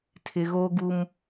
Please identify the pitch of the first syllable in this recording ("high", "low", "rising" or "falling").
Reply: low